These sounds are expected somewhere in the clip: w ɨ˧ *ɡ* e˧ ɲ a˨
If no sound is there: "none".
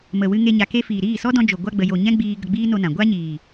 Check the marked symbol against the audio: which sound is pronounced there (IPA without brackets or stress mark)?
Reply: ŋ